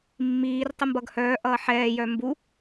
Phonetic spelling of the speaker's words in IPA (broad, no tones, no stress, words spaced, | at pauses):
mːiːr tˤəmbʌɡhœː ʔʌːħɛː jœmbu